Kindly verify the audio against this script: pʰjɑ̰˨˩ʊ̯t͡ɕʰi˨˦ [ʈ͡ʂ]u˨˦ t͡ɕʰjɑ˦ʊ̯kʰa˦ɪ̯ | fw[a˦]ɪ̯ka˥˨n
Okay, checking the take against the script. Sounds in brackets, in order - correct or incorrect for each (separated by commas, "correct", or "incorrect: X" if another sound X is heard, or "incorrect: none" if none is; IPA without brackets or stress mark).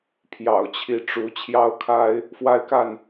correct, correct